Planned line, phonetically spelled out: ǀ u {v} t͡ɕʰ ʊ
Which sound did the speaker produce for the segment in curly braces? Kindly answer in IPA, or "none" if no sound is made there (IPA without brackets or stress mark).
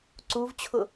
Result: v